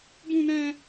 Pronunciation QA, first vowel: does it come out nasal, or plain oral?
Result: nasal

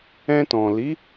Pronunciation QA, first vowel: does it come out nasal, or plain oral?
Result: nasal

